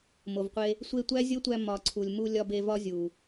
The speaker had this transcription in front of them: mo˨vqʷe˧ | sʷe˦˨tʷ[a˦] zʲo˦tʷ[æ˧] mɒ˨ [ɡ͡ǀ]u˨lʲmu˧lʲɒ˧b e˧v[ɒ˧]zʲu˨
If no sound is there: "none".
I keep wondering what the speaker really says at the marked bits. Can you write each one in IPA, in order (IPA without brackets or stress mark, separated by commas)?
æ˦, æ˧, ǀʰ, ɒ˦